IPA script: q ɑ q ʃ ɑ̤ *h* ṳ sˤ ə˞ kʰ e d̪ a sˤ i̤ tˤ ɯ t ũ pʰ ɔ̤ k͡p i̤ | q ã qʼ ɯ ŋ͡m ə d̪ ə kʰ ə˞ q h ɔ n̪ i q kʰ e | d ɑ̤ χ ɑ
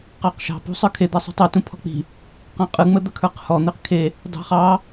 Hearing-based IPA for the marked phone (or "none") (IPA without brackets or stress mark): p